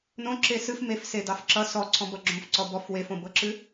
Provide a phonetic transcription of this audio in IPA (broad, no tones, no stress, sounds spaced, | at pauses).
n õ ǁ e s ɨ f m e f s e d ɑ f ǁ ʌ s ɔ ǀʰ ɔ̃ b ʌ ɡ͡ǁ õ f ǀ ɔ b ɔ f w e f õ b ɤ ǁ ɨ